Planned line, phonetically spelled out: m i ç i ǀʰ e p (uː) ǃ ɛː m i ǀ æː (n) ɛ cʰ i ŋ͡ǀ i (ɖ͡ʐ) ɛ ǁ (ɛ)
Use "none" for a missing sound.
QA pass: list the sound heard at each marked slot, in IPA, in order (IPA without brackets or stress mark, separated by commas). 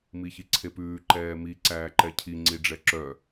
ʉː, ǃ, ɖ͡ʐ, œ